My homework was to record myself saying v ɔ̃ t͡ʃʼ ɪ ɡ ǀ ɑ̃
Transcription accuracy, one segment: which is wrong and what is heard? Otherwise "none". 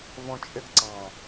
none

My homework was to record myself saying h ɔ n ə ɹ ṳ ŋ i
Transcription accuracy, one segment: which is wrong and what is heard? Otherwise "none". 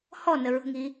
none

